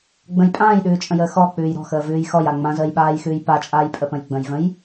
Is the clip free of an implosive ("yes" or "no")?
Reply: no